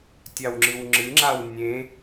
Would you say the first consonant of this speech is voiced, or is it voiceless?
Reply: voiceless